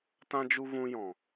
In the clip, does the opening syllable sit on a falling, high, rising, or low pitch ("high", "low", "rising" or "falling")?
high